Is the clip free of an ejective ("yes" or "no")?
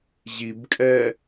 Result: no